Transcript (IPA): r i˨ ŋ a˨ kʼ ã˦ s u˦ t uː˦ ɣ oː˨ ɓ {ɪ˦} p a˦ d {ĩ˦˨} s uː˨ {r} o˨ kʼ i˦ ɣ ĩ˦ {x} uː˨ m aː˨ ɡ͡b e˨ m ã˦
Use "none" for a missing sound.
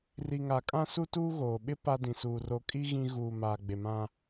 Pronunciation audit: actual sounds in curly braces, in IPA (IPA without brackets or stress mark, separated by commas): ɪ˦, ĩ˨, r, ɣ